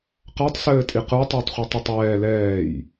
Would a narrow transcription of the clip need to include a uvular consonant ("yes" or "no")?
yes